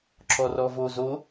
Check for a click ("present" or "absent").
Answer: present